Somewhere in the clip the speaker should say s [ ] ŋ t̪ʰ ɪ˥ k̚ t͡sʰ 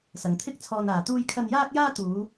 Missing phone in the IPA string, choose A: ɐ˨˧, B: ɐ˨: B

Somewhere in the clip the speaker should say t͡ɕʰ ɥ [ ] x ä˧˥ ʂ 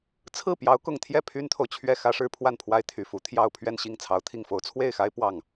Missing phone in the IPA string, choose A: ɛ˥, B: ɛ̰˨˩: A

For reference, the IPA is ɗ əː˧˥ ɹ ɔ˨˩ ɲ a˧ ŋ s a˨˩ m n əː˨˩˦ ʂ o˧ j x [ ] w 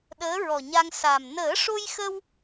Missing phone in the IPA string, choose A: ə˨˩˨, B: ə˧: B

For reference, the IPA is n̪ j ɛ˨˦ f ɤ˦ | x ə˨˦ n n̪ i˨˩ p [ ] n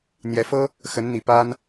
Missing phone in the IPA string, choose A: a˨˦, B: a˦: B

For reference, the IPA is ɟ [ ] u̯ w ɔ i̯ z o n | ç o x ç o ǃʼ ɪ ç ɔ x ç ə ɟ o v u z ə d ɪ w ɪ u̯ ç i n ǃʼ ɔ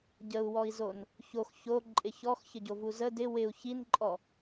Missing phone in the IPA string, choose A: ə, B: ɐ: A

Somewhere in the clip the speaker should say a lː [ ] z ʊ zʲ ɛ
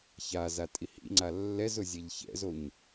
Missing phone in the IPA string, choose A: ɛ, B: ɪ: A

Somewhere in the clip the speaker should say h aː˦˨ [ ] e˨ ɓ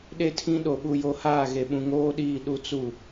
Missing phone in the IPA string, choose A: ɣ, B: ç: A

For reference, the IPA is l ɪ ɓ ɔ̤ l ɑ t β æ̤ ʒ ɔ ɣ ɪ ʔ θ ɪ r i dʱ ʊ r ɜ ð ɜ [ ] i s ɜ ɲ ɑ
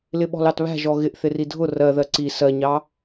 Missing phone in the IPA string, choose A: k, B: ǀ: B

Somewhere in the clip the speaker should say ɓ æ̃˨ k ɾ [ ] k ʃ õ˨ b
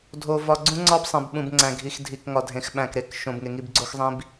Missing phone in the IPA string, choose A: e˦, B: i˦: A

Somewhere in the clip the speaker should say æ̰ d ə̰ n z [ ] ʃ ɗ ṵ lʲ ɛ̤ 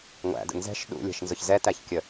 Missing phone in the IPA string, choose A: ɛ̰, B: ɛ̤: B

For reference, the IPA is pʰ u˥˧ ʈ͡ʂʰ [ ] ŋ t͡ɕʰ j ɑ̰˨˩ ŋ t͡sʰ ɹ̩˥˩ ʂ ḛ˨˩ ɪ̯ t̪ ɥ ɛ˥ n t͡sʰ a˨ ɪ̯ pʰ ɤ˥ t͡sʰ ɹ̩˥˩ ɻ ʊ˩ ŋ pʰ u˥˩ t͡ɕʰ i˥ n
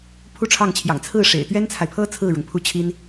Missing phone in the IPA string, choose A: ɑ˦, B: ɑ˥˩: B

